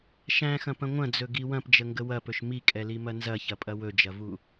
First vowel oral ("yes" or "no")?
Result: no